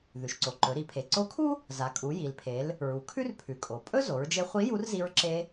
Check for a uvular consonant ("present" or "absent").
present